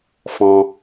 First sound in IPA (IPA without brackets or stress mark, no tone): f